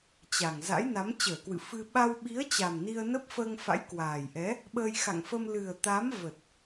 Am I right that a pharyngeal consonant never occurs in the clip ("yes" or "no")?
yes